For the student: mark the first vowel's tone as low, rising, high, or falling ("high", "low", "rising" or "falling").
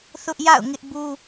high